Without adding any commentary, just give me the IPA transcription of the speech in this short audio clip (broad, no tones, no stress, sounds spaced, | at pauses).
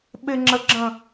ɓ ɪ ŋ͡ǁ ə ɡ͡ǁ ə̃